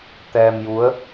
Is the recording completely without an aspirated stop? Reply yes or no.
yes